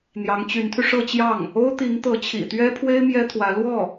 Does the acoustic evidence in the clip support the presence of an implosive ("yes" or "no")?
no